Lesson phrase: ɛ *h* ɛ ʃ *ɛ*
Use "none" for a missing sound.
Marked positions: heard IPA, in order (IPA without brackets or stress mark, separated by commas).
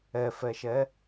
f, ɛ